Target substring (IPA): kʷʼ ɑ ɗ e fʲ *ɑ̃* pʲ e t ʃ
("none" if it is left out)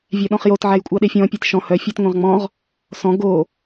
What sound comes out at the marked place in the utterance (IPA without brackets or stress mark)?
ɔ̃